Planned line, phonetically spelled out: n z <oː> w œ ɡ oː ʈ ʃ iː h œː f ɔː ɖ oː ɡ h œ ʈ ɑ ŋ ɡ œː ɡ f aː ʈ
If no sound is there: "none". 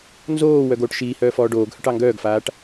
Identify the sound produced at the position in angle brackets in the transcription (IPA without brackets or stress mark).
oː